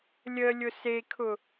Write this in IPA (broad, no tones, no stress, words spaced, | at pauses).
lʲə lʲʊsekʰʊ